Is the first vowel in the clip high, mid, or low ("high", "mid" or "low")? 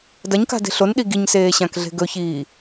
low